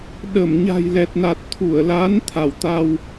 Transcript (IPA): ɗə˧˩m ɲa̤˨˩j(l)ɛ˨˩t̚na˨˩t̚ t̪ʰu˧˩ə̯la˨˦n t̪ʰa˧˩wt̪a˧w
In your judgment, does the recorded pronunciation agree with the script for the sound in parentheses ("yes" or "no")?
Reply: yes